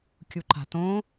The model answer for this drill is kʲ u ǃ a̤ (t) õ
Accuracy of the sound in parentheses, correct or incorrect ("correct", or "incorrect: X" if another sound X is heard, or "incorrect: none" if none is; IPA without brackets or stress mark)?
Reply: correct